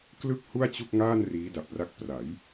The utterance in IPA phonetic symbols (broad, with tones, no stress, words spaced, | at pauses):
klɯ˥˩k̚ hu˥˩a̯t͡ɕu˥˩k̚ŋaː˥˩n riː˦˥da˨˩p̚ra˥˩k̚ pra˩˦j